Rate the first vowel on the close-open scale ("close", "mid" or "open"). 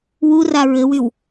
close